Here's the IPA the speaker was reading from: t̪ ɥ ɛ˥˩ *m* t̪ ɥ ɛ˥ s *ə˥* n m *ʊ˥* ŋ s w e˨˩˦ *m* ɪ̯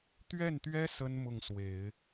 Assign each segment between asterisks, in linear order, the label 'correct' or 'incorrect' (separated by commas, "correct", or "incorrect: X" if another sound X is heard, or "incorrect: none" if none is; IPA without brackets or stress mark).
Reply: incorrect: n, correct, incorrect: ʊ˥˩, incorrect: none